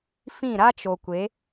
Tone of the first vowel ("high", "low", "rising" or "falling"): falling